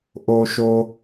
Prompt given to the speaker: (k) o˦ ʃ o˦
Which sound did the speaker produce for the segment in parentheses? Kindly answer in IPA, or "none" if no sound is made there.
ʔ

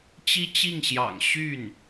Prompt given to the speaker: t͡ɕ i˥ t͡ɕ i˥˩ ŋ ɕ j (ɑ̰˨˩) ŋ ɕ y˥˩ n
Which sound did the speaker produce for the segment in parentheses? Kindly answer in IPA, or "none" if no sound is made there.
ɑ̰˨˩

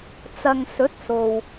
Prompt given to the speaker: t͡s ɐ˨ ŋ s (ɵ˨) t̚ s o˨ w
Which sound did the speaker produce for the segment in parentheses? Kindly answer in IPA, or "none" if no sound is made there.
ɵ˨˥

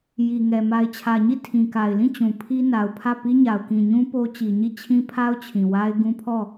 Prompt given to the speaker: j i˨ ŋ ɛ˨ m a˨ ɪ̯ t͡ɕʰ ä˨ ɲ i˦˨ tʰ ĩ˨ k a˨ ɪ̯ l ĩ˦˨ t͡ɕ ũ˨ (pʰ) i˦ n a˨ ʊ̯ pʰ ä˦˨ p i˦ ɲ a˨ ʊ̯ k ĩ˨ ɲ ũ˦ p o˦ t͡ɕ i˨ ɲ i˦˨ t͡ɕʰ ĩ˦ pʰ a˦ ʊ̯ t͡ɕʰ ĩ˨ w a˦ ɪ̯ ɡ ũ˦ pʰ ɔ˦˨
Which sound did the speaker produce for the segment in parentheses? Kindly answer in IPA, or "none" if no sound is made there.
pʰ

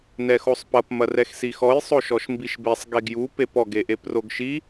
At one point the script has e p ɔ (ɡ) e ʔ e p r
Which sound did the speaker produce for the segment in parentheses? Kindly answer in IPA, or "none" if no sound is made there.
ɡ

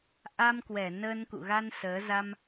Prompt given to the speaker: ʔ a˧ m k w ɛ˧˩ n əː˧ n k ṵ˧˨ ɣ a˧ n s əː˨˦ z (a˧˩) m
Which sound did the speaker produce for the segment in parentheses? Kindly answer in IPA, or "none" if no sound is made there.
a˧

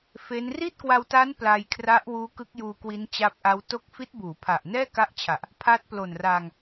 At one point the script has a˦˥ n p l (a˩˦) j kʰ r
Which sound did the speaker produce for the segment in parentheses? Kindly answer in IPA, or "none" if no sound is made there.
a˧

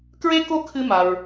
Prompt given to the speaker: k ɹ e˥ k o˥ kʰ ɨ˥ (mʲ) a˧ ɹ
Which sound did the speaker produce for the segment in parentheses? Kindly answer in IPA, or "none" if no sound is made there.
m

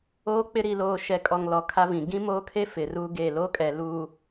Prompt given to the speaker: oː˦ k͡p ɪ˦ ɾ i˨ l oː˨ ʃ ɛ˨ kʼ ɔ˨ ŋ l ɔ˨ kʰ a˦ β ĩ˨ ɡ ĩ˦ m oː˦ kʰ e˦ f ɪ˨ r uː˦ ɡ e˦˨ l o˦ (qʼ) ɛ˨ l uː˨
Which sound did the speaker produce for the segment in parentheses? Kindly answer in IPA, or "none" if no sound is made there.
kʼ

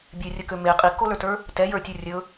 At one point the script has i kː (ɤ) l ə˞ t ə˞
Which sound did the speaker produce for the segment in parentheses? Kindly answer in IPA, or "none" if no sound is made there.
o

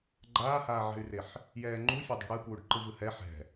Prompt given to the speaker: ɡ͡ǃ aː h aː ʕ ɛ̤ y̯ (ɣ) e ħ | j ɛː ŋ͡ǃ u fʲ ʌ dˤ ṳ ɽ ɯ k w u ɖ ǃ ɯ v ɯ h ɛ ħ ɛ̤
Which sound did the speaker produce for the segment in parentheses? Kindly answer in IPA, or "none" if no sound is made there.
r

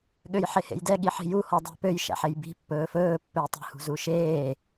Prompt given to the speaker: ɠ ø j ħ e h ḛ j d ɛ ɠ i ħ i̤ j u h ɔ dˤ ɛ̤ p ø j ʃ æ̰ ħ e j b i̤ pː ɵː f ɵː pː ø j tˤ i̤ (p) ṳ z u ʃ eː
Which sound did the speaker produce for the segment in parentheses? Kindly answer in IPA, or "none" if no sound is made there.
h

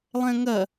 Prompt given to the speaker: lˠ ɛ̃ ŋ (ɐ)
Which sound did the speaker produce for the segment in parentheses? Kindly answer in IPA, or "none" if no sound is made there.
ɐ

